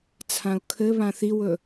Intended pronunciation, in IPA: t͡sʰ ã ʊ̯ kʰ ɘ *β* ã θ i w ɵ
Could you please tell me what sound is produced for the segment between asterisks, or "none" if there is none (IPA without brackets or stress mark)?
β